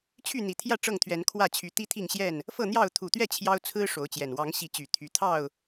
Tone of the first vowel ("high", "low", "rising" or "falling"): falling